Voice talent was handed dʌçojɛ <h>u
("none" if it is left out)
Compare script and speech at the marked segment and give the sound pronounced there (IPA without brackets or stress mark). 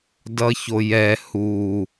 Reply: h